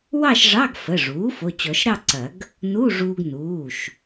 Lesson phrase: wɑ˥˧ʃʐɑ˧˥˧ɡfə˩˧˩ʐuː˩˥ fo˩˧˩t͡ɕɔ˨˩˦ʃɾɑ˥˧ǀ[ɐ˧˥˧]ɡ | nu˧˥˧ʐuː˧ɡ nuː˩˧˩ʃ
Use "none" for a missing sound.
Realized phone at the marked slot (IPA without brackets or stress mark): ɐ˨˩˦